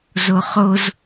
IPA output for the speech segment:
z o χ o z

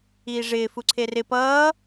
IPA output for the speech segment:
iː ʐ ɪː f u ǀʰ e r ɪ p ʌː

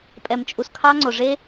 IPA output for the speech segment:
pʼ ɛ˨ m t͡ʃʼ u˨ s kʰ ɑ˦ ŋ͡ǀ o˨ ʐ e˦

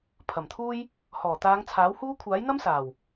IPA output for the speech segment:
pʰ ɐ˨˩ m t̪ʰ uː˥ j | h ɔː˨˩ t̪ aː˨˧ ŋ t͡sʰ aː˨˥ w h uː˥ kʷʰ aː˨˥ j n̪ ɐ˥ m s aː˨˩ w

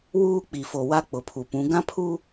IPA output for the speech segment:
w uː˦ k͡p i˨ f o˨ w a˦ k͡p ʊ˨ pʰ u˨ p ũ˨˦ ɡ ã˦ pʰ u˦

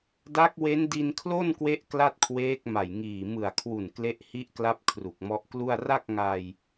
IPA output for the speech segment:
d a˦˥ k̚ w e˦˥ n d i˧ n kʰ l o˥˩ n k w e˦˥ ʔ k l a˥˩ t̚ kʰ w eː˦˥ k̚ m a˨˩ j ŋ iː˨˩ m ɯ˨˩ a̯ kʰ w u˨˩ n k l e˦˥ ʔ h i˦˥ ʔ k l a˦˥ p̚ kʰ r u˨˩ k̚ m ɔ˦˥ ʔ k l u˥˩ a̯ r a˥˩ k̚ ŋ a˧ j

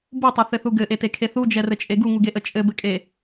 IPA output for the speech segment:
b u tˤ ɛ θ ɘ θ u ɡ ɘ ʔ e t e kʰ e θ u d͡ʒ ɛ r ɘ t͡ʃʼ e ɡ u ŋ u ɡ e ʔ ə t͡ʃʼ ɘ b ɘ kʼ e

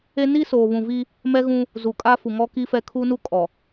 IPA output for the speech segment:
e˦ n i˦ s oː˨ β ũ˨ v i˦ | m ɛ˦ ɣ ũ˦ | z u˨ kʼ a˦ f u˨ ŋ ɔ˦ k i˦ f ɛ˦ kʰ u˦ n u˦ kʼ ɔ˨

